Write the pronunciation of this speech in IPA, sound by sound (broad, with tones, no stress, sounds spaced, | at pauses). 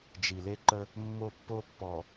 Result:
d͡ʒ i˨ l e˦ ǃ ə˦ | mː o˦˨ pː o˦ pː ɔ˨